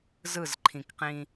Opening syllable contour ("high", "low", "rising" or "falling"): falling